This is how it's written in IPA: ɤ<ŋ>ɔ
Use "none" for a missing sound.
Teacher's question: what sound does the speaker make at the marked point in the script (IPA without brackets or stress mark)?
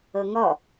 ŋ